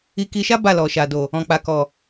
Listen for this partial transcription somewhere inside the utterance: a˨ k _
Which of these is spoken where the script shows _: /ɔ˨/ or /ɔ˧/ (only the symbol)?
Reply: ɔ˨